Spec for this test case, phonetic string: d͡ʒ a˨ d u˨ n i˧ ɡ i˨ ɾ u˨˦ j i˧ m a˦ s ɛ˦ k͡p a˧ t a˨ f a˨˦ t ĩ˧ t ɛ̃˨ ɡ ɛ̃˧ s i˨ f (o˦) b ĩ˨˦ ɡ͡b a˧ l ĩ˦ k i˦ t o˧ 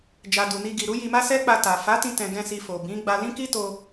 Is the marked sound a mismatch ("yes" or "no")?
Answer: yes